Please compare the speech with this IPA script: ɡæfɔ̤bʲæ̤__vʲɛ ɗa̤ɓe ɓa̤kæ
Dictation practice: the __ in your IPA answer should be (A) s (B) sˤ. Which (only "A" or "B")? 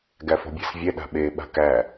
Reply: A